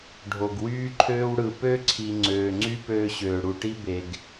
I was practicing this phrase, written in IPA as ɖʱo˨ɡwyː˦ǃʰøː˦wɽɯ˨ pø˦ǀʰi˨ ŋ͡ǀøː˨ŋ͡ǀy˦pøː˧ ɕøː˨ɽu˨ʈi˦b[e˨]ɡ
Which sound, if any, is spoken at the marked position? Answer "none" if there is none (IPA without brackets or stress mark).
e˨